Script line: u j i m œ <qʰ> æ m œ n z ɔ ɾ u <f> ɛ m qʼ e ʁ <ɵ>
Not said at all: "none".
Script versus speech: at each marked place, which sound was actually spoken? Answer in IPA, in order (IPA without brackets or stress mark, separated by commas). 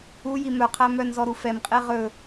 qʰ, f, ɵ